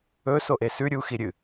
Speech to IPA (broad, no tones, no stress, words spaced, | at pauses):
ɵ soʔesʉ ɾʲu xiɾʲɨ